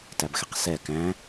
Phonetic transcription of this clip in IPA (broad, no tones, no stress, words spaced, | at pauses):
tæbxeqsɛ kæ̃